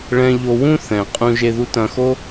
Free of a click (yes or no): yes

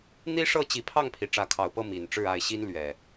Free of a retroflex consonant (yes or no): no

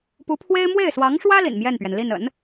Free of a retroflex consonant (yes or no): no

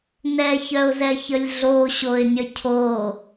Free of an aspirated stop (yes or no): no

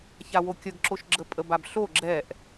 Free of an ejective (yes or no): no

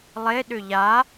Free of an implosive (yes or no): no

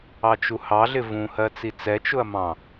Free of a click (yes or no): yes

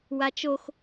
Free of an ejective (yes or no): yes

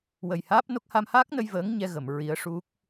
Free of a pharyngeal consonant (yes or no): yes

